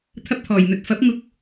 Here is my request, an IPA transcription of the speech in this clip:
t̪ʰ ɐ˧ p̚ t̪ʰ ɔː˨˩ j n̪ ɵ˨ t̚ f ɐ˨˥ p̚ ŋ ʊ˧ k̚

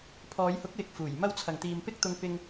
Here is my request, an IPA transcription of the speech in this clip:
pʰ ɔː˨˧ j h ʊ˨˥ k̚ w ɪ˨ k̚ f uː˨˩ j m ɐ˧ w t͡sʰ ɐ˨ ŋ t̪ iː˧ m p ɪ˥ k̚ t̪ ʊ˧ ŋ p ɪ˧ ŋ

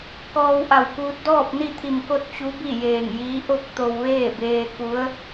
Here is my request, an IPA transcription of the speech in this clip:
k ɔː˧ w ʔ a˧˩ w k uː˧ t̚ d ɔː˥˨ p̚ n i˥˨ t̪ʰ i˧˩ m k o˥˨ t̚ t͡ɕ u˧˥ b i˥˨ j eː˧˩ ŋ j iː˧˥ ʔ o˥˨ k̚ t̪ o˧ w ʋ eː˥˨ b eː˧ k u˧˥ ə̯

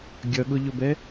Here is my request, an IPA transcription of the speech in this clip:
ɡʲ ʌ ɠ ʊ ʎ ʊ b ɛ

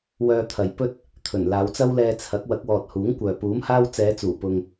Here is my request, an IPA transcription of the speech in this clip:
w œː˧ t̪ʰ ɐ˨ j p ɵ˥ t̚ | t̪ʰ ɵ˨˩ n l aː˨˧ w t͡s ɐ˥ w l ɛː˧ t͡sʰ ɐ˨˥ k̚ w ɐ˨˥ k̚ w ɔː˨ t̚ h uː˨˥ ŋ kʷ œː˨ p uː˨˥ m h aː˥ w t͡s ɛː˨˧ t͡s uː˨˩ p ʊ˨ ŋ

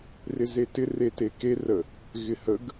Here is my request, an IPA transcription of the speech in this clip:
r ɪ z e t ɪ r e t e k e r ə | ɣ ɪ h ə ɡ

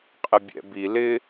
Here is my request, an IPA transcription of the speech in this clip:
qʼ ɪ bʲ ɛ̰ b i l ɪ

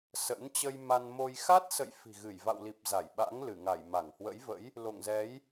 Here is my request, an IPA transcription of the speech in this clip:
s ə̰˧˥ n t͡ɕ ə˧ j m a˧ n m o˧ j x a˦˥ t̚ s ə̰˧˨ j f i̤˨˩ ɣ ɨ˧˩ j v a̰˧˨ w l i˨˩ p̚ z a˧˩ j ɓ a̰˧˥ ŋ l ɨ˧˩ ŋ a˧˩ j m a˧˩ ŋ h w ə̰˧˥ j v ə̰˧˥ j | l o̰˧˨ ŋ z ɛ˨˦ j

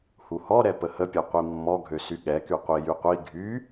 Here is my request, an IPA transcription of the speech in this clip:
h u h ɔ ɾ ɛ p ə h ə pʲ œ qʷ i mː ɔ ɡʱ ø s y ɠ ɛ k y qʷ i j y qʷ i ɡʱ y

